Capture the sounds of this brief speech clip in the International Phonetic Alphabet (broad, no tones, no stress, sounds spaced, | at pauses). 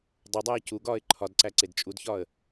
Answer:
dˤ e dˤ æː c u ɡ ɒː ɪ̯ ǃʰ ɒ d ǀ æ ǀ e d t͡ʃʼ u d ç ɒː ə̯